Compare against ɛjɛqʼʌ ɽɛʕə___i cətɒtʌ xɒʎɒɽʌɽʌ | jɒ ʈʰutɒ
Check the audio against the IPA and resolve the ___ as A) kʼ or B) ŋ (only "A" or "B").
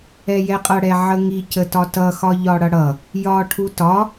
B